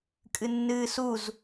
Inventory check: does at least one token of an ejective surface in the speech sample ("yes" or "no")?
yes